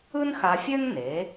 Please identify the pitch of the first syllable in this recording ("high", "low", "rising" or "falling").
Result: high